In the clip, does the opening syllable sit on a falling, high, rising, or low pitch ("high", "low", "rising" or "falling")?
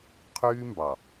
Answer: high